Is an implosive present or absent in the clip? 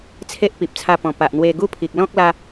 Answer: absent